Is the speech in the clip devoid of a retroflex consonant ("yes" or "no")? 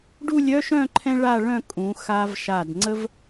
no